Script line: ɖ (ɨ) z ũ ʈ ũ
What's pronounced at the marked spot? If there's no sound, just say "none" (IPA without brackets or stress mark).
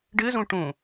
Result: ɨ